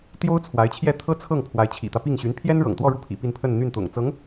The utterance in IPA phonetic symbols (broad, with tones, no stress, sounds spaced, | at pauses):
t̪ j o˥ ʊ̯ t͡sʰ w a˧˥ ɪ̯ t͡ɕʰ j ɛ˥˩ t̪ʰ ɤ˥ t͡sʰ ɤ˥˩ ŋ pʰ w a˧˥ ɪ̯ t͡ɕʰ ḭ˨˩ t̪ ä˦ p i˥˩ ŋ ɕ y˧˥ n pʰ j ɛ˥ n ɻ ɤ̰˨˩ ŋ t̪ w ɔ˥˧ ɻ u˥˩ pʰ ḭ˨˩ p i˥˧ n pʰ ə˥˧ n n̪ y˥˩ n t̪ ʊ̰˨˩ ŋ t͡s ɤ˧˥ ŋ